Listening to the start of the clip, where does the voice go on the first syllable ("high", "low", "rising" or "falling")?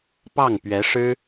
falling